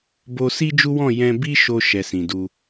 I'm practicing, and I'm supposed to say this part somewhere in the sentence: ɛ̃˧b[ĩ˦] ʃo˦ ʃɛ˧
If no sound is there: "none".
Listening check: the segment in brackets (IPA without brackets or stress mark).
i˦